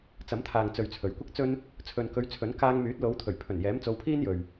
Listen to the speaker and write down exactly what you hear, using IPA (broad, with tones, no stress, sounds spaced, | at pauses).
t͡s ɐ˨˥ m t̪ʰ aː˨ ŋ t͡s ɵ˨ ɥ t͡sʰ ɵ˨˩ ɥ kʷ ɪ˥ k̚ t͡s ɵ˥ n | t͡sʰ ɵ˨ n k ɵ˨˧ ɥ t͡sʰ ɵ˨˥ n k aː˧ ŋ m yː˨˥ t̚ l o˨˧ w t̪ʰ ɵ˨˩ ɥ pʰ ɵ˨˩ n j ɛː˨˥ m t͡s o˨˧ w pʰ iː˥ n j ɵ˨ ɥ